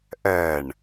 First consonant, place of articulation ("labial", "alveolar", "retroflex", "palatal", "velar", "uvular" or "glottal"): glottal